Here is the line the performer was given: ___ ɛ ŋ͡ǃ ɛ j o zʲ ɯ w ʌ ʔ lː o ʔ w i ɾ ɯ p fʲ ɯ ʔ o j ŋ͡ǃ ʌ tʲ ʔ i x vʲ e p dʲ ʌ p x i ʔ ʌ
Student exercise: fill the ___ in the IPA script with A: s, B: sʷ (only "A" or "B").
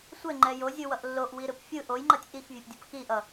B